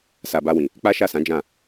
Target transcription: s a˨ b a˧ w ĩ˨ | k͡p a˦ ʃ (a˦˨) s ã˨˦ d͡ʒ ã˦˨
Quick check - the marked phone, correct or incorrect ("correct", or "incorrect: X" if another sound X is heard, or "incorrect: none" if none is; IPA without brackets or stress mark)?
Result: correct